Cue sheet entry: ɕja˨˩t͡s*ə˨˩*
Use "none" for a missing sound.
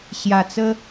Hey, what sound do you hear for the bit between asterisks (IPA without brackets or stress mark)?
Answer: ə˦